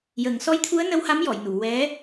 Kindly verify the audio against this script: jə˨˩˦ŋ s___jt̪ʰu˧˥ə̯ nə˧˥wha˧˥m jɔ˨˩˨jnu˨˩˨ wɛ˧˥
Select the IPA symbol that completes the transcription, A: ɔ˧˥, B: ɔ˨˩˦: A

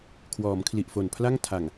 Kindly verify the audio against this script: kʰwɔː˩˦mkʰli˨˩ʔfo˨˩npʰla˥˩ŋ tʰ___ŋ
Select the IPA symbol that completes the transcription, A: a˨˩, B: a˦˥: A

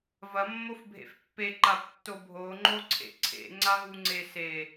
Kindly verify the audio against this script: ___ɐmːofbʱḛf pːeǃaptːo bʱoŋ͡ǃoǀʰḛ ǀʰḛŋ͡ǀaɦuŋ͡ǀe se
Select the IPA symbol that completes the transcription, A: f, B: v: B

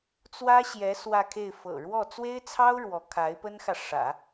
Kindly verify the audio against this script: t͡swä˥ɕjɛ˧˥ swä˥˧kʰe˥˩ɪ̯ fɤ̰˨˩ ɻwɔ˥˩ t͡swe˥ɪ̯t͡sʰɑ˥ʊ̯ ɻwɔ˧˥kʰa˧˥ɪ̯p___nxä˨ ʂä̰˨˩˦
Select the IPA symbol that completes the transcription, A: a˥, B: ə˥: B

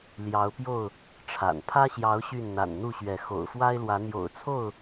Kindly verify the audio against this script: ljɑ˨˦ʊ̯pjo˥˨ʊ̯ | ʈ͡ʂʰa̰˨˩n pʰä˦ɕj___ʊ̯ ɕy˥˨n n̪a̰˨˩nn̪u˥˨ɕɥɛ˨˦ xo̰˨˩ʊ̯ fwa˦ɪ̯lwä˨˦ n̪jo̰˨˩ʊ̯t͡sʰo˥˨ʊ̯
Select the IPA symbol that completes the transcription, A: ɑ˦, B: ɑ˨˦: B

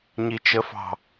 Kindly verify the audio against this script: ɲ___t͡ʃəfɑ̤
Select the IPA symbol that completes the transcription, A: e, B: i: B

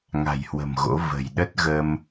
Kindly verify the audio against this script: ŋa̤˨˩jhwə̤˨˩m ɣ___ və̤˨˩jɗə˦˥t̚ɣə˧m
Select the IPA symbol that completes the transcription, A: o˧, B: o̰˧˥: B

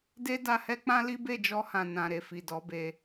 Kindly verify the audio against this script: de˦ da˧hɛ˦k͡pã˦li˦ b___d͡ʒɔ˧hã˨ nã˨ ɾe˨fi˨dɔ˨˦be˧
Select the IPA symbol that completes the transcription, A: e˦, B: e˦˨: B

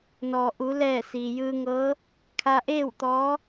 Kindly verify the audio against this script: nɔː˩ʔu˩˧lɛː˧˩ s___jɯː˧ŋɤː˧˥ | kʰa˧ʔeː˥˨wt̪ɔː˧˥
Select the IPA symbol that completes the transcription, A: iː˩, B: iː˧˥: A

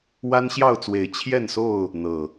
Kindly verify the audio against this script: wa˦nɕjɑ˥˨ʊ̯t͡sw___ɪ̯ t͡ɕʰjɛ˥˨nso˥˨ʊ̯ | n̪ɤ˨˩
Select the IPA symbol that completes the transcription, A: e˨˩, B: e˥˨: A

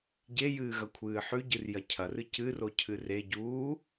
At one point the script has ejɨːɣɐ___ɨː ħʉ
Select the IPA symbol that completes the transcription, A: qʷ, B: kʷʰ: B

